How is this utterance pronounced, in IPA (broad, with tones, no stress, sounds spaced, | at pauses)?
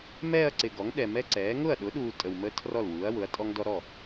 m ɛː˥˧ ɐ̯ ǀ ɪ˨ ɡ ɔ˩˥ ŋ ɗ ɛ˨ m ɛ˦˥ ǀ ɛː˩˥ ŋ ʊ˥˩ ɐ̯ ɗ ʊ˩˥ ɗ uː˨ tʼ ə˨ w m ə˦˥ tʰ r ɔ˥˩ l w uː˩˥ ɐ̯ w ʊ˩˥ ɐ̯ tʼ ɔ˦˥ ŋ d ɔ˦˥ ɾ ɔ˥˩